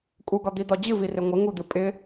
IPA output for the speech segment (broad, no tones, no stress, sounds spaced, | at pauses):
kʼ u ɡ ɒ d̪ i d̪ ɒ d͡ʑ ɨ v i r ɪ ŋʷ ɪ ŋ u d̪ ɨ pʼ ɪ